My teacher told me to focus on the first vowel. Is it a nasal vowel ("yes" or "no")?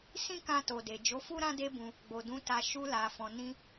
yes